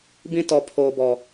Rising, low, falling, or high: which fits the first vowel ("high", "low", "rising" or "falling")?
high